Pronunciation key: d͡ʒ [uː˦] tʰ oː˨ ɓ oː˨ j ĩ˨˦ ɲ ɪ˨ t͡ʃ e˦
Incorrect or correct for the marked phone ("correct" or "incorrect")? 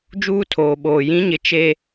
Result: correct